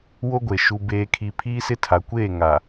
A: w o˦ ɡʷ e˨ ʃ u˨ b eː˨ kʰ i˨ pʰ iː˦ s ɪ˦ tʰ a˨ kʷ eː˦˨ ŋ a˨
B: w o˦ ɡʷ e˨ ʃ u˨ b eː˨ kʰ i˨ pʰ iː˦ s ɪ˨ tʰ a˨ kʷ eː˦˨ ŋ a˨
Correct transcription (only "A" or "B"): A